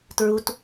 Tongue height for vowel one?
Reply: high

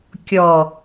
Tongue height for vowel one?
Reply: mid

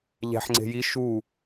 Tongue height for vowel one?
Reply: low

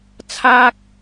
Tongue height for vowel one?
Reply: low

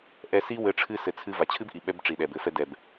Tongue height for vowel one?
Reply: mid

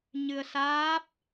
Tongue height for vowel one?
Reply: high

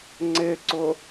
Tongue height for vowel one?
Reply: high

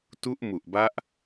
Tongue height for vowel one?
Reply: high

